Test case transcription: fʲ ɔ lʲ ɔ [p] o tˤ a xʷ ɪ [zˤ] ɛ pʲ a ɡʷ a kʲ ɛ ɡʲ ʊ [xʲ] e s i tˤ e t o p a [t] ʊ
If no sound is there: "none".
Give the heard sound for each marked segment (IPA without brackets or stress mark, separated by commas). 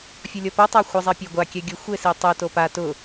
p, zˤ, xʷ, t